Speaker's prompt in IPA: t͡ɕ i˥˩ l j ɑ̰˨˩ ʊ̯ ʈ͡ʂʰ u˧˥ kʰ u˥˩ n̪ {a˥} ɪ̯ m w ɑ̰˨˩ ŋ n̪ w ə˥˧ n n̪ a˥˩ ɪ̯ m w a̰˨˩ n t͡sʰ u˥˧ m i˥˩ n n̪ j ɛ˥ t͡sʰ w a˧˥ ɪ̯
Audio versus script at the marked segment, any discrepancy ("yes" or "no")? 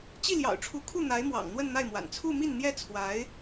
yes